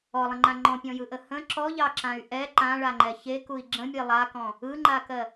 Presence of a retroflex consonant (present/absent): present